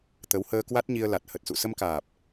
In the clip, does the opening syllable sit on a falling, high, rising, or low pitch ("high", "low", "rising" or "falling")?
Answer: rising